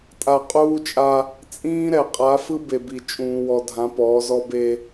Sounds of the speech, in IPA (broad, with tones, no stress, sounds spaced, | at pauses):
tʼ a˨ qʼ uː˦ t͡ʃʼ a˦ | t͡sʼ ĩː˦ ɾ ɛ˨ qʼ a˨˦ f ɯ˦ b e˨ b i˨ t͡ʃʼ ũː˦ w ɔ˦ dʱ ã˨˦ p ɔː˨˦ z ɔ˦ b e˦